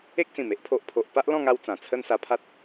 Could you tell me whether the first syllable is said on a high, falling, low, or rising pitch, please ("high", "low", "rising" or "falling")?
high